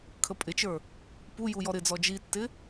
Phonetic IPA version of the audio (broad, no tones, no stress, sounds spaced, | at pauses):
kʰ ə pʼ ɪ t͡ʃ ə˞ | p u j u j ɔ ɾ ɪ d͡z ɔ d͡ʒ i tː ɪ